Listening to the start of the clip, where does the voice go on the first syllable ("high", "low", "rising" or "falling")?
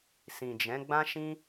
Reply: low